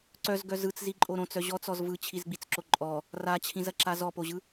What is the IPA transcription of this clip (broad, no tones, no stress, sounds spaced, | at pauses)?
ǀ œ z ɡ œ z ɯ t͡s z i ǃʼ o ɾ õ t͡s œ ʑ ɔ t͡s ɔ z v ɯ t͡ɕʰ i z ɡ͡b i t͡s ǁ o ǃʼ ɔ | r a t͡ɕʰ ĩ z ɐ ǁ a z ɔ p o ʑ ɯ